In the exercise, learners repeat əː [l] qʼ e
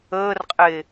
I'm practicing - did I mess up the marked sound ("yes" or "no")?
yes